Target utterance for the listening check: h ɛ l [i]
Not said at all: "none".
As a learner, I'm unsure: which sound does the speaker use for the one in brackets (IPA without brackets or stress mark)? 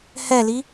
i